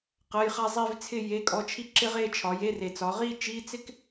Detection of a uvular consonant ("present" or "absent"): present